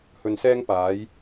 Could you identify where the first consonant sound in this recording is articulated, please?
glottal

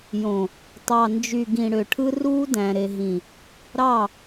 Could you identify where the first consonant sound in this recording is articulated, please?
palatal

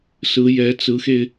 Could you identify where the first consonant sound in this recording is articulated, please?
alveolar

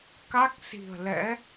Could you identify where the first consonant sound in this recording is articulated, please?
velar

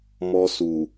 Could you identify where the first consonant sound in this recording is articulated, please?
labial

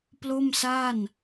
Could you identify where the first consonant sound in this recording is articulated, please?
labial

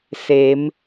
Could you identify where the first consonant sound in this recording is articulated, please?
alveolar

